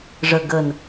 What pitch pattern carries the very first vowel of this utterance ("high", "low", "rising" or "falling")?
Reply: low